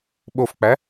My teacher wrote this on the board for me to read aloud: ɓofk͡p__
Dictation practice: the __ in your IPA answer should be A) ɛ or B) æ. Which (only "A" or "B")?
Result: B